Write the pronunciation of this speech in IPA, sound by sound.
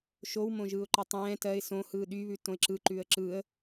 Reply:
ʃ o w m õ ʒ ɯː ʊ̯ ǃ ɛ tˤ ɛ̃ː t ɜ ɪ̯ s õ h ɯː ɗ y β ʉ t õ ɪ̯ ǁ ɯ ǃ ʉ ə̯ ǁ ɯː ə̯

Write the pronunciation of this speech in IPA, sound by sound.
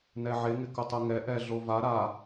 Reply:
n ɛ ʕ e ŋ ɪ k ʊ tˤ ʊ ŋ ɛ ʔ ɛ ɮ o v a ɾ a

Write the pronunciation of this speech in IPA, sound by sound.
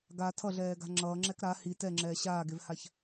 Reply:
ɡ a tʰ ʌ ɮ ɛː ɡ a̤ ŋ͡ǁ ʌː ŋ͡ǁ ɛ k ɾ a h i t ɛ ŋ͡ǁ ɛː ɕ aː ɡ e v h a ç

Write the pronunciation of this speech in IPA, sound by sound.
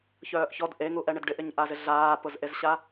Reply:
ç œː ʔ ç ɔ d ʔ e ŋ u ʔ ɛ ɳ ɪ d ɖ ɪ ʔ ɪ ɲ ʔ a z ɪ ɮ aː p ʊ z ʔ e z ɕ a

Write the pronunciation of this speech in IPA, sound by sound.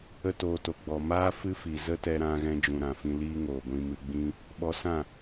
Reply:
ə˦ t oː˧ t o˨ ɡ͡b ɔ˨ m aː˦ f ɨ˦ f i˨ z ə˦ t ɛ˧ ɾ ã˧ ɣ ɛ̃˧ d͡ʒ ũ˨ ɾ ã˨ f ĩ˧ l iː˦ ŋ oː˨ ɡʷ ĩ˧ m ɨ˧ ɡ͡b ĩ˦ | ɓ ɔ˧ s ã˦˨

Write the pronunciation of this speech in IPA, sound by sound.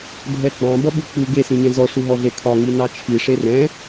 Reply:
bʱ ɛ ɡ͡b ɑ̃ b ʌ ɓ u k͡p u ɡ e s ĩ ɲ ɛ̃ z ɔ ʂ u ɦ ɔ ɮ e kʰ ɒ ŋ i n ɑ t͡ʃʰ i ʂ e r ɛ̃

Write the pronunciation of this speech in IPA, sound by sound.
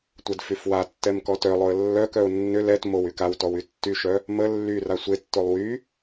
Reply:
tʷ ɛ d f y f w a tː ɛ m k ɔ t œ lˠ o ə̯ lː œ k œ ʊ̯ nː ʏ l ɛ t m o w y k a w t ɔ w y tː y ʃ œ | m ə lː y r a sʷ e tː o lˠ w y

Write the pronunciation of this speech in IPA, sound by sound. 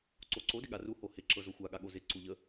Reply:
ǀ o ǀ o d ɪ ɠ a r u h o h ɪ ǁ ɤ z o xʷ a ɠ a ɠ o z ɪ ǀ u ʎ ə

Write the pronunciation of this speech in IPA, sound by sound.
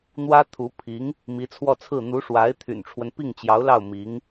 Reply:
n̪ w ä˥ t̪ʰ u˧˥ pʰ i˧˥ ŋ | m i˧˥ t͡sʰ w ɔ˥˧ t͡sʰ ɹ̩˥˩ n̪ u˧˥ ʂ w a˧˥ ɪ̯ t̪ʰ y̰˨˩ n ʈ͡ʂʰ w ə˦ n p i˥˩ ŋ t͡ɕ j ɑ˧˥ ʊ̯ l ɑ˥˩ ʊ̯ m i˧˥ ŋ

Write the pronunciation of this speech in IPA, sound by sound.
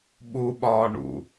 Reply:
ɓ u ɓ ɒː ɳ ṵ

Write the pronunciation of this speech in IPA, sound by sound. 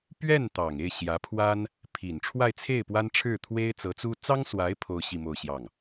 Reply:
p ɥ ɛ˥˩ n t̪ ɑ˨˩ ŋ e˥˩ ɪ̯ ɕ j ä˧˥ pʰ w a˥ n | pʰ i˨˩ n ʈ͡ʂʰ w a˥˧ ɪ̯ t͡sʰ e˥˩ ɪ̯ p w a˥ n ʈ͡ʂʰ ɻ̩˥˩ t̪ʰ w e˥ ɪ̯ t͡s ɤ˧˥ t͡s u˥ t͡s ɑ˥ ŋ s w a˧˥ ɪ̯ pʰ o˥ ʊ̯ ɕ i˥˧ m o˥˧ ʊ̯ ɕ j ɑ˥˩ ŋ

